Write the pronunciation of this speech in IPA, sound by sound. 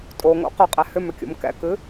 tʼoŋo̰ qʏqʼɛ hʏmʏkʲo̰m kɛ̰kɨ

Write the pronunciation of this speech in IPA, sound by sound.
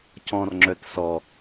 cɔ̃rŋ͡ǁœt sɔ

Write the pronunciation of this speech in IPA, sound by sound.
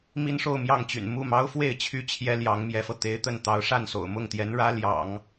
mi˥nʂo˥˧ʊ̯mjɑ˥˩ŋt͡ɕy̰˨˩n mu˥˩mɑ˥ʊ̯fwe˥˩ɪ̯ t͡ɕʰy˥t͡ɕʰjɛ˥ ljɑ˧˥ŋmjɛ˧˥fɤ˧ t̪e˧˥ɪ̯t̪ə˥˩n t̪ɑ˧˥ʊ̯ʂa˥˩nso̰˨˩ʊ̯ mʊ˥˩ŋt̪jɛ˧˥n ɻä˥ ljɑ̰˨˩˦ŋ

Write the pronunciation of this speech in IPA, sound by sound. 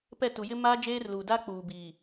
pɛ˦˨tu˨ jɪ˦ maː˦d͡ʒeː˦rluː˨ da˦k͡puː˨biː˨

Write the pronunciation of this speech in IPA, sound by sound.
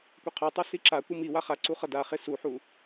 kʷɛqʰotˤu siǁakʷɯ miwa χa ǀuχʌdaχe suħu

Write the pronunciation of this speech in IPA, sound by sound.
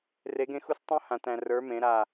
re˨˦ɡẽ˦˨xu˦˨s tˤũ˦hã˨t æ̃˨rə˞˨˦ mẽ˨˦ɾa˦˨

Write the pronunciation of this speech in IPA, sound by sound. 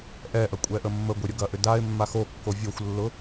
ʔɛʔɐ kʷʼɛʔəmːəɡʷe ɾʲʊɡɐʔʏ daɪ̯mːa xokːo vʲoxʷlːʊ

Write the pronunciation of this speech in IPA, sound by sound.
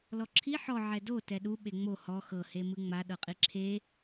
lɔǁʰi ħɔ ʕɛdo tɛɗu ɓeŋ͡mo hɔ xɤ hemɯŋ͡ma ɗɤqʼiǁʰe

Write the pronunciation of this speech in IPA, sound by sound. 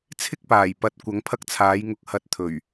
t͡sʰɪ˥k̚paː˨˩j pɐ˨˥t̚kʷɐ˨˥ŋpʰɐ˥k̚t͡sʰaː˨˥j ŋʊ˨k̚hɐ˨˥t̚ t̪ʰɵ˨˩ɥ

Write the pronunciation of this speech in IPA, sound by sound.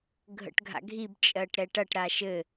ɡʱə̰ʈɡʱa̰ɡʱib t͡ʃʼɜʈɾɛʈɐʈ ɾaʃɘ

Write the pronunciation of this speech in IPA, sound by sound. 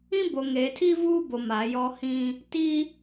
ĩ˦bo˨ŋeː˨tʰi˦ vuː˦bo˨ ma˨˦jɔ˦ hĩ˦ | ti˦

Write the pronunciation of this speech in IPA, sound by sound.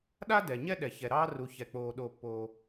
ɗa˥ dɛ˩ ɲɛ˥ɗɛ˩ çɛ˩ɾɑː˥ru˩ çɛ˩k͡poː˩ ɗo˩pːoː˩

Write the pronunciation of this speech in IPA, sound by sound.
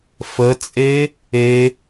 fət͡sʼe | e

